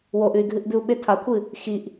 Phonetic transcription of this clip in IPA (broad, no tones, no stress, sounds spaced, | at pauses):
w o ʔ ʉ y̯ ɡʱ ɨ ʔ b ʉ u̯ ɓ e tʰ a kʷʰ ɨ | x i ʔ